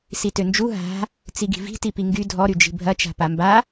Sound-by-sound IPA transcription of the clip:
s i t ø n d͡ʒ u ɦ a̤ | t͡s i ɡ i̤ v i̤ t i p i ŋ ɡ y dʱ ɔ ɾ y d͡ʒ i̤ bʱ ɐ t͡ʃ a̤ p a m b a

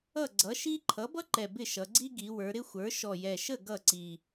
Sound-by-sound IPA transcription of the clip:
ʌ˥˩ ɡ͡ǀ ʌ˩˥ ʃ i˥ ǃʰ ʌ˩˥ b ʌ˥ ǃ ɛ˨˩ b ɪ˥˩ ʃ ʌ˩˧ ɡ͡ǀ i˥ ɡ i˩˧ w ə˞˩˧ ɾ ɪ˥ xʷ ə˞˩˥ ʃ ɔ˨˩ j ɛ˨˩ ʃ ə˥˩ ɡ ʌ˥˩ ǀ i˨˩

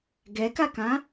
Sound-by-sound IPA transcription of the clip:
ɡ ɛ k a k ã

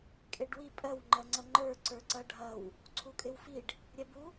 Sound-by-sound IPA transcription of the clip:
kʼ e ɖ w i pʼ ɜ w ŋ͡ǃ ɜ ŋ͡ǀ ɐ ŋ͡ǃ ə˞ ǀ ə˞ ǀ ɐ ɖʱ ɐ w | ǀʰ u kʼ ɪ w f i ɖ | ɾʲ ɛ b u

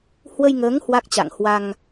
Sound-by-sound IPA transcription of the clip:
h w ə˧ j ŋ əː˨˦ ŋ h w a˦˥ k̚ t͡ɕ a̰˧˨ ŋ h w a˧ ŋ

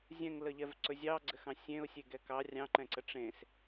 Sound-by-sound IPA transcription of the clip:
zʲ ɛ̃ ŋ l ə ʎ ɛ v ǀ ɵ zʲ ɑ ɡ͡ǀ ɘ x ɑ̃ sʲ ẽ ʊ̯ sʲ e ɡ ɛ k ɑ rʲ ɑ̃ ǃ ɛ̃ ǀ ə ʈ͡ʂ ẽ s

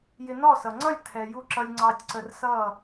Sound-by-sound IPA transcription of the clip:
j ɪ˧ n ɔ˦˨ s ʌ˨ ŋ͡ǀ ʌ˦˨ lʲ tʰ ɛ˨ j u˧ ǁ ʌ˧ lʲ ŋ͡ǀ ɑ˧ tʲ ǀ ə˧ r s ʌ˦˨

